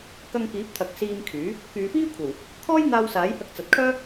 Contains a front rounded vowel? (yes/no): yes